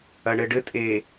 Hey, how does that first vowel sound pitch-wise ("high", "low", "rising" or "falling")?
low